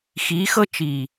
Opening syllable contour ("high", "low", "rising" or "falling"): rising